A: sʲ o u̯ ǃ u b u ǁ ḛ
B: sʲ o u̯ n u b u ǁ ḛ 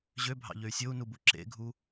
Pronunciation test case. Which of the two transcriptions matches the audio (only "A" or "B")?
B